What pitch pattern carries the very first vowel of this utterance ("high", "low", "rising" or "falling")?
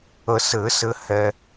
low